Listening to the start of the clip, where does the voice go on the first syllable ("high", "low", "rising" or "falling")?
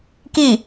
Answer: falling